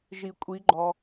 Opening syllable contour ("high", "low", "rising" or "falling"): low